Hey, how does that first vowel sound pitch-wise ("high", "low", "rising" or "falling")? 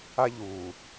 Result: high